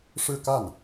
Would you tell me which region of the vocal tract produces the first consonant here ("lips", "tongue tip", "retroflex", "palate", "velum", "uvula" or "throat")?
retroflex